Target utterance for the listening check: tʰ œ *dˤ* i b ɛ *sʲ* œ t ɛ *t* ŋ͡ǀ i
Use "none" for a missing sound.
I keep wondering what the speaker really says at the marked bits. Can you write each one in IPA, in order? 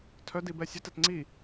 d, sʲ, t

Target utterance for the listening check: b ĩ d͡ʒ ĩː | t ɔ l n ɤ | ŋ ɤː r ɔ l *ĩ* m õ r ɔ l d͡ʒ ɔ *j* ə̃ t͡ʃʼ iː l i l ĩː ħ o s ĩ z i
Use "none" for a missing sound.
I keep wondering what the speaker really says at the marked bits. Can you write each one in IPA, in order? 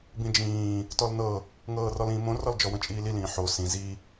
ĩ, w

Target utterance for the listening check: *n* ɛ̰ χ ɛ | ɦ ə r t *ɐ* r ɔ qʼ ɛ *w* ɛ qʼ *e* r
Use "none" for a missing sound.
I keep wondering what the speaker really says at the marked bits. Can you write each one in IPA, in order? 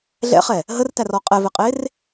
ɮ, æ, v, e

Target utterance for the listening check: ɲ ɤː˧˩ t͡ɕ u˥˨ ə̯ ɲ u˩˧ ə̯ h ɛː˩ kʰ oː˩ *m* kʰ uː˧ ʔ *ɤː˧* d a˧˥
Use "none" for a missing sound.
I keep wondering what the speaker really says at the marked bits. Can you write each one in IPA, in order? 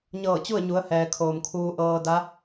m, ɤː˧

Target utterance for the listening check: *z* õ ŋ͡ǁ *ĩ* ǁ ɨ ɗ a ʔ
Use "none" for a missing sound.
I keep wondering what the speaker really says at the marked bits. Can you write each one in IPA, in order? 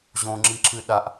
ʑ, i

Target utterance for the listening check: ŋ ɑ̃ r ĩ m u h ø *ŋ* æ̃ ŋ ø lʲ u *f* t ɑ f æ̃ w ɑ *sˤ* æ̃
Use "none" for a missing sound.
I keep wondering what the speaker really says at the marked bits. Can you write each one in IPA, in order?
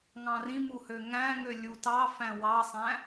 ŋ, none, sˤ

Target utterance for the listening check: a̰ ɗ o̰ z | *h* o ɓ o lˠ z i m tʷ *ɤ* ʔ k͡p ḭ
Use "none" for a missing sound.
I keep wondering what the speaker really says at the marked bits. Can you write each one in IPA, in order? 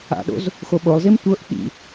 x, ɤ

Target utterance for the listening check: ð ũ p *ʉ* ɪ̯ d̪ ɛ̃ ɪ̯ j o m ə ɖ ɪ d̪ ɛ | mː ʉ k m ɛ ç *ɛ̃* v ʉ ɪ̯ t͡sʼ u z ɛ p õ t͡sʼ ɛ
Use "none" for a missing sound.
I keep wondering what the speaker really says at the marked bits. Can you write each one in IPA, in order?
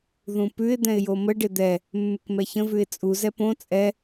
ʉ, ə̃

